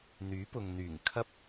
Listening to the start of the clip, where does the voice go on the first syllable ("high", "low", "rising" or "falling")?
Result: rising